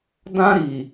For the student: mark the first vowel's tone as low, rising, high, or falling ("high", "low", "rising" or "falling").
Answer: high